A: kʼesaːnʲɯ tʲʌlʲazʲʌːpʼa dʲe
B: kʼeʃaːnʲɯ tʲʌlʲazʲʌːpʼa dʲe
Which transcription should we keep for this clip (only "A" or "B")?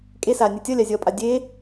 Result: A